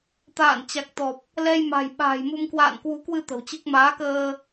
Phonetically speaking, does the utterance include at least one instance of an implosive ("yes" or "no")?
yes